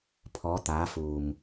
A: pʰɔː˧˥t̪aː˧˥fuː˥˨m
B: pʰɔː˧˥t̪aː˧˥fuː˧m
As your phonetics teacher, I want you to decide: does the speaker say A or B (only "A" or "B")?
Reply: B